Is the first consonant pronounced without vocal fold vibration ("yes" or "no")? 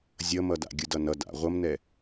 no